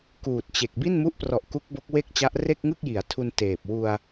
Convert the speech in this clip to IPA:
k uː˨˩ t̚ t͡ɕ e˨˩ k̚ b i˥˩ n m u˦˥ ʔ p r ɔ˨˩ ʔ k u˦˥ k̚ b o˦˥ k̚ w e˥˩ k̚ t͡ɕ a˦˥ ʔ r e˥˩ k̚ ŋ ɯ˥˩ k̚ j i˩˦ a̯ tʰ u˧ n t eː˨˩ p̚ w u˧ a̯

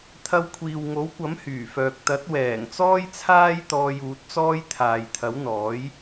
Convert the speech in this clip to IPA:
t̪ʰ ɐ˧ w kʷʰ iː˨ w ŋ o˨˥ w kʷ ɐ˨˥ m h yː˨˩ f œː˨ k̚ t̪ ɐ˨˥ t̚ w ɛː˨˩ ŋ t͡s ɔː˥ j t͡sʰ aː˥ j t̪ ɔː˧ j uː˨˥ t̚ t͡s ɔː˥ j t̪ʰ aː˨ j t̪ʰ ɐ˨˥ w n̪ ɔː˨˥ j

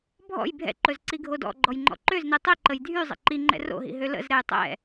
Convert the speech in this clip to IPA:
bʱ ɔ̰ j bʱ ɛ̰ ǃ ɵ z ǀ i ɡʱ o d ɔ̰ ɡ͡ǃ ɔ j ŋ͡ǃ ɔ̰ ǃ ø z n i tˤ i ǃ ə j dʱ y zˤ ə̰ ǃ i ŋ͡ǃ ɛ̰ r o̰ ɦ ḭ ɦ ø l ə̰ z ɾ ɛ j tˤ ɛ̰

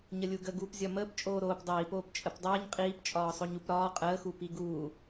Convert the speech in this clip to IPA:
ɲ ə lʲ u ɡ ə ɡ uː p zʲ ɒ m əː p t͡ʃʼ oː ɾ oː p dˤ iː p oː p t͡ʃʼ ə p dˤ əː ɲ qʼ iː p t͡ʃʼ ɒː sˤ o ɲ u p ɾ ɒː qʼ əː x uː p i ɡ uː

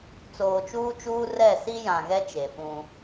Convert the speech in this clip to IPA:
t͡s oː˨ t͡ʃ uː˦ t͡ʃ uː˦ r ɛ˦˨ s i˦ j ã˨ ɣ ɛ˦ t͡ʃ e˨ f ũ˦

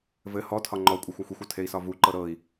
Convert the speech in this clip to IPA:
v ɘ h ɔ tʰ ɒ ŋ͡ǃ ɔ kʷʼ ɘ xʷ a xʷ i xʷ ɔ tʰ e i̯ s ɒ v u ǃ ɤ ɾ ɤ i̯

